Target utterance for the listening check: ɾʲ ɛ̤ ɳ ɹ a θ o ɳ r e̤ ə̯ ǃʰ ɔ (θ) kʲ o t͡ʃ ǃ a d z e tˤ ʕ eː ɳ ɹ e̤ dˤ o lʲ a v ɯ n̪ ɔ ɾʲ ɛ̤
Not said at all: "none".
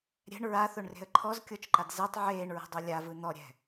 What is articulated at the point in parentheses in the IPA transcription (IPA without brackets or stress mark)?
z